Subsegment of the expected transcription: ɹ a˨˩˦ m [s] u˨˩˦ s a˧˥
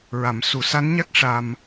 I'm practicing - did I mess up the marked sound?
no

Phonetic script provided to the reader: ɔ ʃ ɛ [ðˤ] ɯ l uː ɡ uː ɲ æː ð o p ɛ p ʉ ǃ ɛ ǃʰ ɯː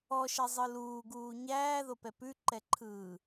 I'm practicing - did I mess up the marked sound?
yes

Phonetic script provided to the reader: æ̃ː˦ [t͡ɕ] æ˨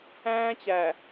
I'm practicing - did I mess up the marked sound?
no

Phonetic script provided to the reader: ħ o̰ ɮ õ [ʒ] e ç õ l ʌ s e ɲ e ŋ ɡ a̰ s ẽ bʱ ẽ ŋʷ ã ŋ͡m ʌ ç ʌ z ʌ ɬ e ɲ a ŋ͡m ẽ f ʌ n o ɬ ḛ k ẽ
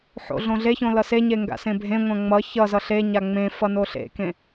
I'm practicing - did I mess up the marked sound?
yes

